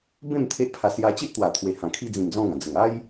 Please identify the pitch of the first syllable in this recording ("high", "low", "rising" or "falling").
falling